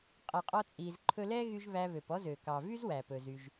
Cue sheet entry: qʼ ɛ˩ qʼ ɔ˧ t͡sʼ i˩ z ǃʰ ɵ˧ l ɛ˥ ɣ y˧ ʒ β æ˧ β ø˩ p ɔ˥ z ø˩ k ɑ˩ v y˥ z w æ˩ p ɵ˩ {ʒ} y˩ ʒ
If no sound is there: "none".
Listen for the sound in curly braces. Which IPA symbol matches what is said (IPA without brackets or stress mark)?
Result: z